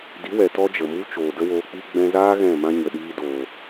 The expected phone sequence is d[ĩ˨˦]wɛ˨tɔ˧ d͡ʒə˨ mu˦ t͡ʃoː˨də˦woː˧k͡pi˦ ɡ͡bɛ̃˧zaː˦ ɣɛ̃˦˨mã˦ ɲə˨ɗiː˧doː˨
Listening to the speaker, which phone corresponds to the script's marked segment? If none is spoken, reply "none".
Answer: i˨˦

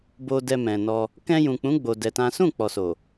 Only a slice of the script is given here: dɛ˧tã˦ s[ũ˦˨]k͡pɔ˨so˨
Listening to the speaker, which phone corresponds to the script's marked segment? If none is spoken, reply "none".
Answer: ũ˦˨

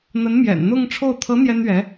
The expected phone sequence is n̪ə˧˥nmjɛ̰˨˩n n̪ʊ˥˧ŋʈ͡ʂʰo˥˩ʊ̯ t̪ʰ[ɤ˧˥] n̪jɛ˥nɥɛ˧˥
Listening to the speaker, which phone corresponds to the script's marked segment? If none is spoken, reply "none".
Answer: ɤ˧˥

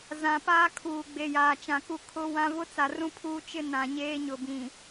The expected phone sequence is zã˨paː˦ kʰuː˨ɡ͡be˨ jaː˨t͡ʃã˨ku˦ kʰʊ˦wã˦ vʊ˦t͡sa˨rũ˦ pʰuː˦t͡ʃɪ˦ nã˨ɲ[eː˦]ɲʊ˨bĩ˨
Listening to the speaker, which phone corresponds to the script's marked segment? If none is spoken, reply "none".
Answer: eː˦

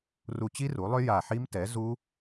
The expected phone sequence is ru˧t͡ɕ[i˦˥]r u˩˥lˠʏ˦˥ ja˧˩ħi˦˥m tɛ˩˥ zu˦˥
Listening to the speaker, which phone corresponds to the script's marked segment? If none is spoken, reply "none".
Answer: i˦˥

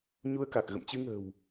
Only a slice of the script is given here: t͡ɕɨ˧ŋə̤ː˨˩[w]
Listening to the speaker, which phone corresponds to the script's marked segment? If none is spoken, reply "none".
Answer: w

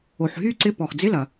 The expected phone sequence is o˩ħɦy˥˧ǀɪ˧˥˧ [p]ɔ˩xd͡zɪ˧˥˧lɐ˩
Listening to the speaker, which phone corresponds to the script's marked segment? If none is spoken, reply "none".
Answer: p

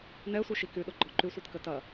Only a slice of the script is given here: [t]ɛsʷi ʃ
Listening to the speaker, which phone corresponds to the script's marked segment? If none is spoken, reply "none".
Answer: n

